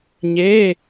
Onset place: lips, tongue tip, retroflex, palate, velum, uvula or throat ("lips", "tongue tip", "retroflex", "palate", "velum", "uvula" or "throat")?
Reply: palate